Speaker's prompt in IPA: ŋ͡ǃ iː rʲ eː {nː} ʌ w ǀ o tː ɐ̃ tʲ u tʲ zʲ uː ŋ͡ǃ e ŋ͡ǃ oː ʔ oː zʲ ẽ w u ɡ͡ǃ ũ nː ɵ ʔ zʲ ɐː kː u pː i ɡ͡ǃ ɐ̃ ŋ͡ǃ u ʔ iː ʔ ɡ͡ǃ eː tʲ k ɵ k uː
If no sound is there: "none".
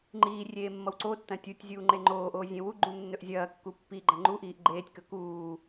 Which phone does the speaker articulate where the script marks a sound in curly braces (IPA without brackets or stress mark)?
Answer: mː